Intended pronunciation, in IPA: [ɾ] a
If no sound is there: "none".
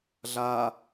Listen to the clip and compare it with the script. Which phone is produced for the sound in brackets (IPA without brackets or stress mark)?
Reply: ɮ